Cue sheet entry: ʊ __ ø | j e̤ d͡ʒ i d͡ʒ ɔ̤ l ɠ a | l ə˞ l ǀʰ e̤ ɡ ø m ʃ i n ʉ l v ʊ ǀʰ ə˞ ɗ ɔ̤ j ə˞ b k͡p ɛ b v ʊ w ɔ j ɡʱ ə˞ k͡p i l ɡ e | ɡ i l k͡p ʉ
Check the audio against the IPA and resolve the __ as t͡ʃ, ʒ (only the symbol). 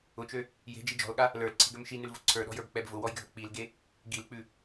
t͡ʃ